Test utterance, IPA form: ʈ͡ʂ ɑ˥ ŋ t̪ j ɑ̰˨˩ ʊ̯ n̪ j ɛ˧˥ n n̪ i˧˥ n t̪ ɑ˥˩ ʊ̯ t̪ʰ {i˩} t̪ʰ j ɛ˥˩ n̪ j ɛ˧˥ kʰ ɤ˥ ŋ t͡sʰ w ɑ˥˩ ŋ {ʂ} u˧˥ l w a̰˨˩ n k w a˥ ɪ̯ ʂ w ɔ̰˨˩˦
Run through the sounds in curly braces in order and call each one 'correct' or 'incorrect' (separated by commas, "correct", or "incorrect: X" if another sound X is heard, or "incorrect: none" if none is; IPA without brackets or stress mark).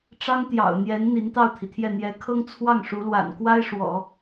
correct, correct